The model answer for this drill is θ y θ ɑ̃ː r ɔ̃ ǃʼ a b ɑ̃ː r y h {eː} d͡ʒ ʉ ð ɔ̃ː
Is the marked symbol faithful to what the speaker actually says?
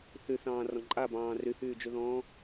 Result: no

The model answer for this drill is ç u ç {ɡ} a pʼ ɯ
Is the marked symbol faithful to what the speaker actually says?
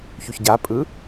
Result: no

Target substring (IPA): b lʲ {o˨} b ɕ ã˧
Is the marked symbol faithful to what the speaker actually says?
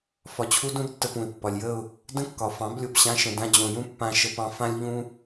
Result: yes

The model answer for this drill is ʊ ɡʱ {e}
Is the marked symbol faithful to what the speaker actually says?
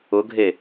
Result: yes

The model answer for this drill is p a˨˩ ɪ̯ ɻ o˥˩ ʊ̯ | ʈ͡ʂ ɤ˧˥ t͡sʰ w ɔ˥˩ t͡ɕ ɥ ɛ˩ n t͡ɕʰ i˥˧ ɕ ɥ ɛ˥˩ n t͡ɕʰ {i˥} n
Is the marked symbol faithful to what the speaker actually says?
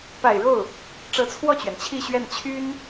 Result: no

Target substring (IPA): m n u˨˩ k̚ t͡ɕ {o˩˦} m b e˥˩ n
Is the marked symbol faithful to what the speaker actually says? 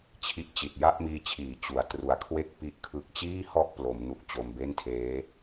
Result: no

